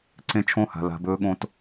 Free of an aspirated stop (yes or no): no